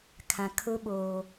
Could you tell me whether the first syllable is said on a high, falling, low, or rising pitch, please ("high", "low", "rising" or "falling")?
low